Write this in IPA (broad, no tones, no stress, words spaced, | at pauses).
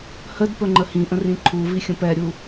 hədpɵ ŋ͡ǃəhĩʔə̃r ĩǃʰuvi xʲə̃pɛɾʲu